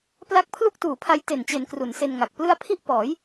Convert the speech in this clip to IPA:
p l a˦˥ k̚ pʰ l u˥˩ k̚ t uː˨˩ pʰ a˧ j t e˨˩ n t͡ɕ e˩˦ n k r u˩˦ n s e˧ n ŋ a˨˩ k̚ p l ɯ˥˩ a̯ pʰ i˥˩ ʔ p ɔː˩˦ j

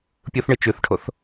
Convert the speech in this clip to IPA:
pʲ u θ ɳ ɨ t͡ʃ ʉ θ ʈʰ o θ

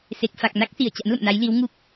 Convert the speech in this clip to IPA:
s e˨˩ k̚ f a˨˩ k̚ n a˦˥ k̚ s i˧˩ ə̯ t͡ɕ a̰˧˥ n l ə̰˧˨ m n a˨˦ j l i˨˦ w ŋ u˦˥ k̚

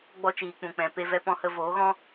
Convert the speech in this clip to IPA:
ɡ͡b ɔ˧ t͡ʃ iː˨ k͡p ũ˨ k͡p ɛ̃˨ p e˧ v ɛ˧ p ɔ̃˧ h ə˧ v oː˨˦ ɣ ɔ̃˦

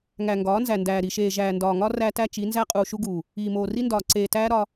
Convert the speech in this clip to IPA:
ŋ æ˨ ŋ ɡ ɒː˨˦ n z æ˨ n d æː˨ ɾ i˨ ʃ eː˨ ʒ æː˨ n d ɒː˨ ŋ ɒ˦ r æ˦ t æ˦ t͡ʃ i˨˦ n z æ˦ qʼ uː˨ ʃ u˦ ɡ uː˨ | iː˨ m oː˨ r i˦ n d ɒː˨ ǀ eː˨ t æː˦ ɾ ɒ˦

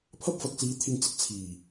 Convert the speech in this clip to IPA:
pʰ ɐ˥ p̚ f ɐ˨ k̚ t͡s iː˨˧ t̪ʰ ɪ˨ ŋ t͡s ɪ˧ k̚ t͡sʰ iː˨˩

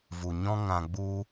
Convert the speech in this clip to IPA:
v u˨ ɲ ɔ̃˦ ŋ ã˧ ɡ͡b u˦

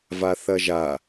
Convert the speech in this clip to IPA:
v a θ ɐ ʒ a

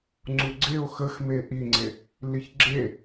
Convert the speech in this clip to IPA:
ŋ͡ǀ u ɡ͡ǀ e o̯ x ə x m e ʔ i ŋ͡ǀ e | l i ç ɡ͡ǁ e

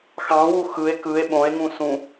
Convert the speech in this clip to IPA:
x ɑ̃ w u x ɯ e̯ k ɯ e̯ ɓ õ e̯ ŋ ũ s ũ

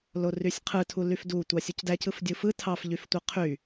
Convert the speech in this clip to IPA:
l o r y sʲ qʰ ɯ tʰ u l y f d u tʷ ɑ sʲ u c d æ c ɯ f dʲ ɯ f ɯ tʰ ɑ f ʎ y f tʷ ɯ qʰ y

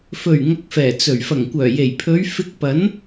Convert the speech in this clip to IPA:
f ɵ˨˩ ɥ ŋ ɐ˧ k̚ f ɛː˨˩ t͡s ɵ˨˩ ɥ f ɐ˨˩ ŋ kʷ œː˨˩ j e˨˩ j pʰ ɵ˨˧ ɥ f ɪ˧ k̚ p ɐ˨˥ n

